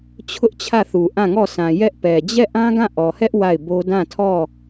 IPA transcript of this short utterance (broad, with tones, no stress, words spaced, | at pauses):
t͡ɕʰʊ˦ʔt͡ɕʰä˦˨θu˨ ʔã˦˨ŋɔ˦˨sã˨ jɛ˦ʔpɛ˨ d͡ʑɛ˦˨ʔã˦ ɡã˦˨ʔɔ˨hɛ˦ʔ wa˦˨ɪ̯bo˦ dã˦˨tʰɔ˦˨